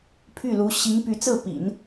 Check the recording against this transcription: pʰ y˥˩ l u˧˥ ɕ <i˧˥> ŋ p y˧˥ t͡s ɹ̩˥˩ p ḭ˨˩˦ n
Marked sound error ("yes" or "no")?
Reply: no